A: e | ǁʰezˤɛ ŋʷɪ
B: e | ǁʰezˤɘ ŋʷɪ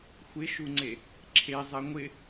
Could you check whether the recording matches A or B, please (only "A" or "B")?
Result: A